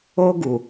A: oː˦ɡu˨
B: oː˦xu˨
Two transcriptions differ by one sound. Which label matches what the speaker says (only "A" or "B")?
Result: A